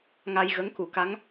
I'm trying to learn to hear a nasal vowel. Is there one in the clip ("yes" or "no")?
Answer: no